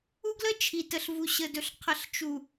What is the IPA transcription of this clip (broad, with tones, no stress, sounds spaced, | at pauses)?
u˦ ɡ l ə˦ t͡ʃʰ i˨ t ə˨ ɬ v u˨ ɕ ə˨ d ɵ˨ ɬ qʰ ə˨ ɬ t͡ʃ u˨